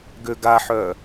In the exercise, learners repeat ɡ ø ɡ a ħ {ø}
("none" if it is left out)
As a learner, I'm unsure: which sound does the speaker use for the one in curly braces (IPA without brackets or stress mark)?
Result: œ